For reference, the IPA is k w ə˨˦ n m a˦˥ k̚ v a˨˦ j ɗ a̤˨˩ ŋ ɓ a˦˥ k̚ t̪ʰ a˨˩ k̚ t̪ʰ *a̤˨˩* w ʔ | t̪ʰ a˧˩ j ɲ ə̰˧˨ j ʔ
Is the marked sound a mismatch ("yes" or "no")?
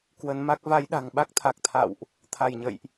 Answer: yes